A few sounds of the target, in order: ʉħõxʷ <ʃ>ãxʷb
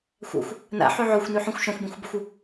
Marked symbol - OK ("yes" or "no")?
yes